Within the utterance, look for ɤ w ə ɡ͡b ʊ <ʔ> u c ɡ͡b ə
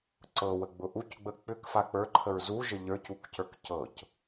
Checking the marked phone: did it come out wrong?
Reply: no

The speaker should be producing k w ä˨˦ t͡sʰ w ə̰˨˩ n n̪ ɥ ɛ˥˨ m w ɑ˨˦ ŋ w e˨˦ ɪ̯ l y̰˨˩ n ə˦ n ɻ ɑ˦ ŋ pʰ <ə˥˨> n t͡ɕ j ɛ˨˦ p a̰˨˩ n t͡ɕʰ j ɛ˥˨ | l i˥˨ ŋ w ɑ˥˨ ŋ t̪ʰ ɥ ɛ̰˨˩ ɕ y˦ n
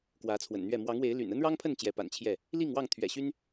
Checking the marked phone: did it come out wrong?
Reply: no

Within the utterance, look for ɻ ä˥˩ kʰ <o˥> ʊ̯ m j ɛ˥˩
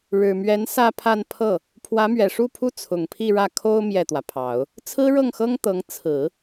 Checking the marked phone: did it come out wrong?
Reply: no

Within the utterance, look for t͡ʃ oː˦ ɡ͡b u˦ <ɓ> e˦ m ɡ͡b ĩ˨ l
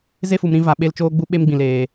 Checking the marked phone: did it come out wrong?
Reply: no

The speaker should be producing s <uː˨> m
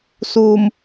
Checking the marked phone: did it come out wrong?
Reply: no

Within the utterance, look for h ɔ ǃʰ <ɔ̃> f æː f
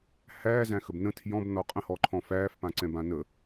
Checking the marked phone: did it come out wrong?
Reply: no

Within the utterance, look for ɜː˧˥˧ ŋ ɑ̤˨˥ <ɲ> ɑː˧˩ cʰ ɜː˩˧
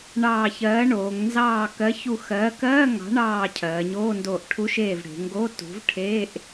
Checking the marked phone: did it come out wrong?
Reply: yes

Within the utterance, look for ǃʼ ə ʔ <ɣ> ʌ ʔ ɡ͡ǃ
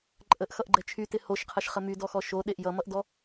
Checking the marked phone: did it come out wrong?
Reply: yes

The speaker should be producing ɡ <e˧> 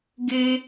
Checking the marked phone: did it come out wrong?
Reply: no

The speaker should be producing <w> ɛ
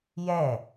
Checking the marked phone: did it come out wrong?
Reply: yes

